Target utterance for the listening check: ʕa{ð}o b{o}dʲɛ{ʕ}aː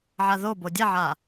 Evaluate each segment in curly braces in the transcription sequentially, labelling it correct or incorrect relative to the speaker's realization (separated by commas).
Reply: correct, correct, correct